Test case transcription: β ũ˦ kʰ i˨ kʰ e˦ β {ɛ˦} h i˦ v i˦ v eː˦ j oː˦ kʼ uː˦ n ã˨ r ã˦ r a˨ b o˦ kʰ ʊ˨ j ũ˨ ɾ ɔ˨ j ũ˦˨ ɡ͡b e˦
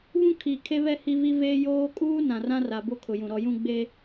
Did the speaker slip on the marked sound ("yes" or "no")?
no